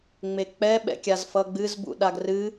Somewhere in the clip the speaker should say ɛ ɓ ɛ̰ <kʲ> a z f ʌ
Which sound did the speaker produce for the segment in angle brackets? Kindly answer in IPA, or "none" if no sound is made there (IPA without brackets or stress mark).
kʲ